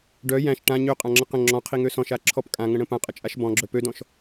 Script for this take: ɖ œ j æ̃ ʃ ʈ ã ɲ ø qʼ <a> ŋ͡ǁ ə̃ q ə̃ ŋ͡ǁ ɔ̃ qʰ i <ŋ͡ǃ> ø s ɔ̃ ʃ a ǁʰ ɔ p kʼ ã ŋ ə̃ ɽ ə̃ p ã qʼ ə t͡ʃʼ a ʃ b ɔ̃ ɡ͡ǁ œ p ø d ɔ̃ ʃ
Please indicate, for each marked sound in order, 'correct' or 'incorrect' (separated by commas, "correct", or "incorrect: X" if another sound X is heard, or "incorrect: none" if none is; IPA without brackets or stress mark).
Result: incorrect: ã, incorrect: ŋ